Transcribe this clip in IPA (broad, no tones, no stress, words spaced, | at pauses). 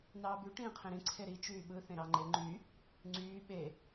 nɑːby ʈĩːqʰẽɾĩ ǀʰeɾi t͡ʃyːɓɯ θẽɾɑŋ͡ǃe ŋ͡ǃy | ŋ͡ǀyː ɓe